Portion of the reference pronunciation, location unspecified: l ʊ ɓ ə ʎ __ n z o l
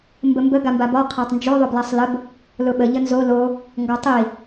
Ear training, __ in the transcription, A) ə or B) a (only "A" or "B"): A